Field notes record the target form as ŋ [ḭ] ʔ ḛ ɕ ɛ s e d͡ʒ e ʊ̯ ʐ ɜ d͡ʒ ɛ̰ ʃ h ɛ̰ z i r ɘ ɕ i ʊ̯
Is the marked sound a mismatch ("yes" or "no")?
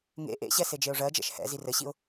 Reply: yes